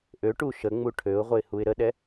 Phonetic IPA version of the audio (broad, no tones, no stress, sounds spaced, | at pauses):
ʔ ø ʈ u ʃ ə ŋ͡m u ʈʰ ø ʊ̯ ʁʷ ə ɪ̯ h u ɪ̯ ɾ ə ɗ ɛ